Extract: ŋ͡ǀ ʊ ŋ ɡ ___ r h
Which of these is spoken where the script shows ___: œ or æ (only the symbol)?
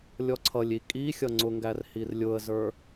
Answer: æ